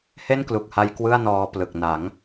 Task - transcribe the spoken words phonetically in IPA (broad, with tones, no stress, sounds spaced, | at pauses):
h e˥˩ n k l u˨˩ k̚ h a˧ j k w ɯ˥˩ a̯ n ɔː˧ p l ɯ˨˩ k̚ n a˩˦ ŋ